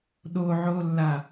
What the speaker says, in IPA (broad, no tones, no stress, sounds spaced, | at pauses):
ɗ o ʕ oː lː a